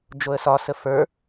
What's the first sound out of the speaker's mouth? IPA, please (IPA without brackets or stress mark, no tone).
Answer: d͡ʒ